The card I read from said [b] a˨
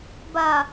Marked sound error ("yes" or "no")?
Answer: no